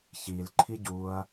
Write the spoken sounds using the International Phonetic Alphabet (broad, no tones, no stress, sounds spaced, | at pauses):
ç i l ǃʰ i ɟ u ɐ̯